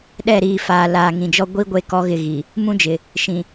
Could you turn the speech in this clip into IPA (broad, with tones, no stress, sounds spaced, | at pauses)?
ɗ ɛ˦˨ ɾ iː˨ f aː˨ l aː˨ ŋ ĩ˨ d͡ʒ ɔ˦ ɡʷ i˦ ɡʷ e˦ k ɔ˦ ɣ ɪ˦˨ ɣ i˨ | m ũ˦ d͡ʒ ɪ˨ | ʃ ĩ˨